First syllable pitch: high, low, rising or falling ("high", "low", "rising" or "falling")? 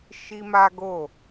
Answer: high